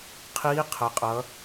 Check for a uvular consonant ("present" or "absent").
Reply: present